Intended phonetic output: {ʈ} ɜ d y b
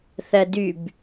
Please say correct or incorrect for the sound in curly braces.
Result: incorrect